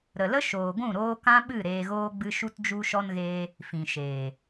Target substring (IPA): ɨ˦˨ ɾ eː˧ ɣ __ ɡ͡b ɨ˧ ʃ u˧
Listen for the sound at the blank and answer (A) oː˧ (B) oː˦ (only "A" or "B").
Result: B